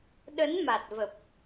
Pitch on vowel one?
rising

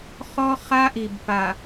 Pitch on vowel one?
high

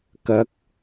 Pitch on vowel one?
rising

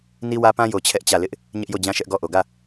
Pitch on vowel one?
high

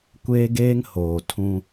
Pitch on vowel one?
high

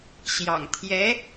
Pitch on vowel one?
low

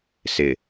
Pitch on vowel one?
low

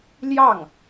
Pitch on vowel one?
falling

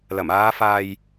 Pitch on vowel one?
low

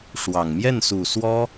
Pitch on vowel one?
low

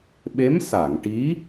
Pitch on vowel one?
rising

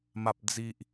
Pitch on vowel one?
low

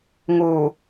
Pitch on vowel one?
low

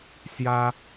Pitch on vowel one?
high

